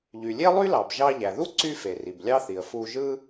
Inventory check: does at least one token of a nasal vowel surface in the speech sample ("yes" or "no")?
no